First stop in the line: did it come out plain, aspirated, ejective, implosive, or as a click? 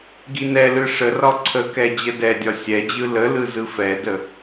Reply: plain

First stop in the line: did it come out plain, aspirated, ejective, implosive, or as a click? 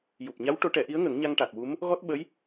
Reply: plain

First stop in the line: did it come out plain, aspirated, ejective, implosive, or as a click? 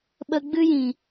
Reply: implosive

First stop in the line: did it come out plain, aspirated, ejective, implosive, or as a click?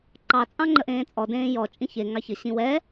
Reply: click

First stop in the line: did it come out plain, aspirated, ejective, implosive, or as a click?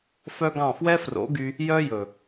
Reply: plain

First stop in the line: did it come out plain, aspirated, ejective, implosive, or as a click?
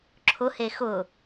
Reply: click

